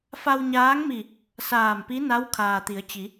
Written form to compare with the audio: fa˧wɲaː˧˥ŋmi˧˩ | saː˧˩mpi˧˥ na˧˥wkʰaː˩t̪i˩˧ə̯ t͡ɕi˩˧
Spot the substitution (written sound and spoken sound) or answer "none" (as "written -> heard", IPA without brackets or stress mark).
none